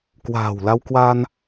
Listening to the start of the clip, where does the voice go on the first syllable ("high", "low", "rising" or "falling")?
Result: low